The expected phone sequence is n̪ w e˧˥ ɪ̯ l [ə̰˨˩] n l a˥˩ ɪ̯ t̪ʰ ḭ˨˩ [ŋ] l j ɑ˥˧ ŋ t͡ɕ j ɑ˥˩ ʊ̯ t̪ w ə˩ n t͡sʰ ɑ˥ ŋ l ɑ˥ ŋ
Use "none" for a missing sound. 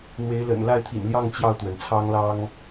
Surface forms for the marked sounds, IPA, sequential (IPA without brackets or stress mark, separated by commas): ə̰˨˩, n